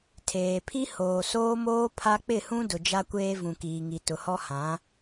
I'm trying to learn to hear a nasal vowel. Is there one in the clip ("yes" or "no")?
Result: yes